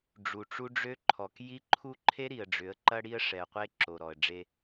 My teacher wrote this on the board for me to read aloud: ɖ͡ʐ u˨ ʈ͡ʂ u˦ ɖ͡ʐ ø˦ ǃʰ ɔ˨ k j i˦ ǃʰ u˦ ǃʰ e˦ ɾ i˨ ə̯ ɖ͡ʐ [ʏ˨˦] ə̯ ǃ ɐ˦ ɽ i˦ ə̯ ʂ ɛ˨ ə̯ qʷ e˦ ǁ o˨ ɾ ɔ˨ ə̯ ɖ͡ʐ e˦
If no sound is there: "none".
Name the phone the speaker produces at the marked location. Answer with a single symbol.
ʏ˨˦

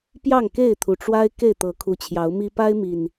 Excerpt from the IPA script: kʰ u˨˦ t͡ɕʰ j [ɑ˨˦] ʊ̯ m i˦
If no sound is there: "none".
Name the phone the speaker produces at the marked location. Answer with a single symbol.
ɑ˨˦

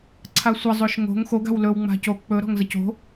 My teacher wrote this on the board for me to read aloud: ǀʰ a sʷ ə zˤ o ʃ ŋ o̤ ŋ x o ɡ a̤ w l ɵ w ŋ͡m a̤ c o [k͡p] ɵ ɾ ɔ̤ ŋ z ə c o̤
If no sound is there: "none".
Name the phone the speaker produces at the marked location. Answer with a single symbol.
k͡p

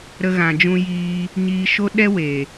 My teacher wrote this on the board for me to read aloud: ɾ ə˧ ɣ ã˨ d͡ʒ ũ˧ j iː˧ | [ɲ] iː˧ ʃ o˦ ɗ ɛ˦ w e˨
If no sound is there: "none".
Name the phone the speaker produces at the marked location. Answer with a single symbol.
ɲ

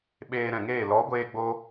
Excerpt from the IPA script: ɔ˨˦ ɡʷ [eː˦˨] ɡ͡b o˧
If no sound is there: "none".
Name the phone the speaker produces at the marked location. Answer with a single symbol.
eː˧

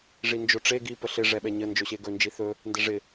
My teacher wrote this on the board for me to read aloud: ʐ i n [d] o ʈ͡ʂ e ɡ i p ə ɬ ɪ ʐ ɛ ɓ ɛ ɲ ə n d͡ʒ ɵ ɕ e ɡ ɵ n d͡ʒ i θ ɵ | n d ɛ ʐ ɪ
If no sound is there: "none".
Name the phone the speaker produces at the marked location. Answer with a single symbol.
d͡ʒ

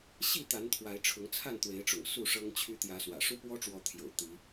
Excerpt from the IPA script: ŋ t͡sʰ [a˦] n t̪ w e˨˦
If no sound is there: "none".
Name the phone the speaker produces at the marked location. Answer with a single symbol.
a˥˨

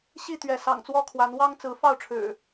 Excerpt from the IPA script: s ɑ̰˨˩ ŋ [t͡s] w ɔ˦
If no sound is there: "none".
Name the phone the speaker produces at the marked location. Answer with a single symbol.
t͡s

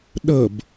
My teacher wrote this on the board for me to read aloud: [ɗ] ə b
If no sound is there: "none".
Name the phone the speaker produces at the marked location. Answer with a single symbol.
ɗ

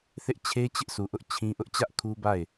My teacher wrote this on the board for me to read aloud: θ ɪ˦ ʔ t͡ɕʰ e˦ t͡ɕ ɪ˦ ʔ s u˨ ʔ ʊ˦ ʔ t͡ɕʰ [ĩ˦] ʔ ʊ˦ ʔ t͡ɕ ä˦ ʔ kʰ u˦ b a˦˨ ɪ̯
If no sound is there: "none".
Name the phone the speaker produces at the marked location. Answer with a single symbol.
ĩ˦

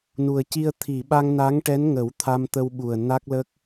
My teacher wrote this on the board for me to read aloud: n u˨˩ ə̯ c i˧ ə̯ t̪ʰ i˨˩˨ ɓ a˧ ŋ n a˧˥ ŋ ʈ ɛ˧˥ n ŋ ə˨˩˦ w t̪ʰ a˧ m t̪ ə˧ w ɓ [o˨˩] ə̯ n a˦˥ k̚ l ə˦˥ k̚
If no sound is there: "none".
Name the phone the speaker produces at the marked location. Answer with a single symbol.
u˨˩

